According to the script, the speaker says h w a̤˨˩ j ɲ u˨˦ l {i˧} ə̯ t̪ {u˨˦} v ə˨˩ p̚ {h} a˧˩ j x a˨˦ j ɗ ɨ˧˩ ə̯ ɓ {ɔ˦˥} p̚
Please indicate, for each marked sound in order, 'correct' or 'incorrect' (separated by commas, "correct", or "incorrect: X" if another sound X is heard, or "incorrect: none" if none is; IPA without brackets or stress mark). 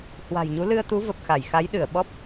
incorrect: ɨ˧, correct, incorrect: x, correct